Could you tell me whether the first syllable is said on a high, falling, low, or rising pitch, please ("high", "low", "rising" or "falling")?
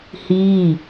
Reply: falling